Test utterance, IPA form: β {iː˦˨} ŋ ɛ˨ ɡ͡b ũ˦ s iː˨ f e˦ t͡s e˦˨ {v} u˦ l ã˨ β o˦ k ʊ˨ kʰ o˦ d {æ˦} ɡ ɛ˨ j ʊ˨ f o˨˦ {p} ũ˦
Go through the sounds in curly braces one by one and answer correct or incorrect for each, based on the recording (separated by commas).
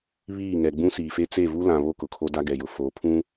correct, correct, incorrect, incorrect